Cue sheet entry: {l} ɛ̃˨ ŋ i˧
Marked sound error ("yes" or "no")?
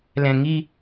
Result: no